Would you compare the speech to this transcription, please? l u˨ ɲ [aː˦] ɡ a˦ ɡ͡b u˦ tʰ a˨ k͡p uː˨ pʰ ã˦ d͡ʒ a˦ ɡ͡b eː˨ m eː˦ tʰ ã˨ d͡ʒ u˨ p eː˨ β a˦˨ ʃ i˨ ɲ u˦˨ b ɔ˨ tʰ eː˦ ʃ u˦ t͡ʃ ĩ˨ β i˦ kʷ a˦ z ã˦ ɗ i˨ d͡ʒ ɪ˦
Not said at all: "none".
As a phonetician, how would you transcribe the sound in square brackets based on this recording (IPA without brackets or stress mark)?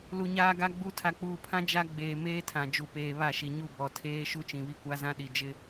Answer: aː˦